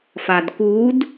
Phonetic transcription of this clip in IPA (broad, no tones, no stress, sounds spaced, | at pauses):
f a d k u d